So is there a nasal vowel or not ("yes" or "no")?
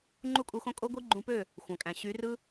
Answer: yes